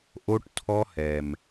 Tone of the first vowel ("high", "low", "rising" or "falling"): high